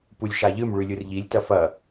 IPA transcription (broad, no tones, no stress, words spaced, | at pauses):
pulʲʃaʎɨm ɭʉlʲɯrʎilʲ tɐfɐ